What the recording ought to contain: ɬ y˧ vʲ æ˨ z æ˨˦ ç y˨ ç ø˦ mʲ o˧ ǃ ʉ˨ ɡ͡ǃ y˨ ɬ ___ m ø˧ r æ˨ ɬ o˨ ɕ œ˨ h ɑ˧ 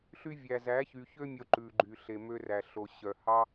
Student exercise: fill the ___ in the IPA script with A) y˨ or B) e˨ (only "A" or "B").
B